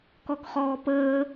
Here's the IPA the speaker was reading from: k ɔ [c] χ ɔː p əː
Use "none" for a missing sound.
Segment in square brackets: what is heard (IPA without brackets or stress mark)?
k